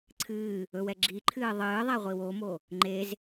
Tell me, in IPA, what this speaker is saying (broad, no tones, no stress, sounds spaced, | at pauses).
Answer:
ǀʰ ɨː | ɵ w ɛ ɡ͡ǁ i ǃʰ ɨː ðˤ ɨː ðˤ ɛ ʁʷ i w o m o | ŋ͡ǃ e z